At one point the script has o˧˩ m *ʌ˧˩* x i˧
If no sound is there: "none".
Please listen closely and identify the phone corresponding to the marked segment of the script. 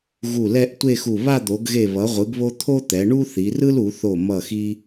ʌ˧˩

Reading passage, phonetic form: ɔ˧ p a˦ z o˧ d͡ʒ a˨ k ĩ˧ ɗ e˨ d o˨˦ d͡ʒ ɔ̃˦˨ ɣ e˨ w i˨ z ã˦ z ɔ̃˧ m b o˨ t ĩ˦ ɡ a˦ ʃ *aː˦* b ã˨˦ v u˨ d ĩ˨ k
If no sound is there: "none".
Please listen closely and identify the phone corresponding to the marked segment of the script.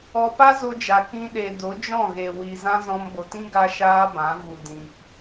aː˦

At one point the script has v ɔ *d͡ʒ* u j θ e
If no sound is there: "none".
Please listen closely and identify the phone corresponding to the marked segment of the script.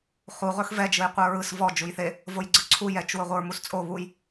d͡ʒ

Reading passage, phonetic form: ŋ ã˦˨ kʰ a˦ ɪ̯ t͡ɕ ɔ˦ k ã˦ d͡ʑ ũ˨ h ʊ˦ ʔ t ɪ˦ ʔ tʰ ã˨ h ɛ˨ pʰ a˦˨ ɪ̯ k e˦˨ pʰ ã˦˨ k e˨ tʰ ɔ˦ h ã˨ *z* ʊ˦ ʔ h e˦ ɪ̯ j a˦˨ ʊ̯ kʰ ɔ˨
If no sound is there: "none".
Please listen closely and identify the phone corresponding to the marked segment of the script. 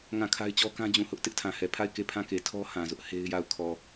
z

